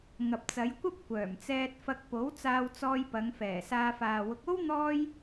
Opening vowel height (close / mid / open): open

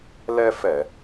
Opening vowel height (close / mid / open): mid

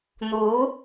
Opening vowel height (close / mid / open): close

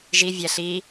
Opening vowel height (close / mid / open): close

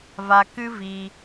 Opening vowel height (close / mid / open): open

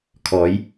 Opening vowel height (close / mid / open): mid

